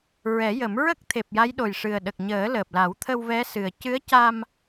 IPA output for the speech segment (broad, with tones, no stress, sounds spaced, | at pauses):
ɹ ɛ˨˩˦ j ə˨˩˦ m ɹ ə˦˥ k̚ t̪ʰ e˨˩ p̚ j a˧˥ j ɗ o˨˩ j ʂ ɨ˨˩ ə̯ ɗ ə˨˩ k̚ ɲ əː˨˩˦ l əː˨˩ p̚ l a˨˩˦ w t̪ʰ ə˧ w v ɛ˧˥ s ɨ˨˩ ə̯ c ɨ˧˥ ə̯ c a˧ m